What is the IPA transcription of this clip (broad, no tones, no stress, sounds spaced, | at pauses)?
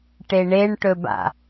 ʈ e ɳ e ɳ ʈ ɵ b a̰